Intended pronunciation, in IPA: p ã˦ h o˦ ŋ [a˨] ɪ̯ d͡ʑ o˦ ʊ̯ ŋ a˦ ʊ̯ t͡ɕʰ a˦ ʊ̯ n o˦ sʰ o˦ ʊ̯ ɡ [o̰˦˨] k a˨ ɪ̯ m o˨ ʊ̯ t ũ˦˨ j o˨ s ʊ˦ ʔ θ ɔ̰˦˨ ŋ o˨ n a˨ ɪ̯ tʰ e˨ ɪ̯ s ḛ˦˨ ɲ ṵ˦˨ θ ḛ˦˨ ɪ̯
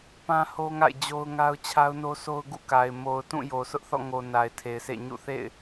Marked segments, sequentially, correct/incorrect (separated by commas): incorrect, incorrect